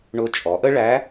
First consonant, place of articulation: retroflex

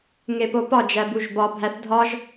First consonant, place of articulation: velar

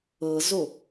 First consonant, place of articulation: alveolar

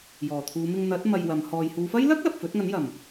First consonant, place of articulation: palatal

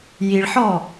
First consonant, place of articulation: palatal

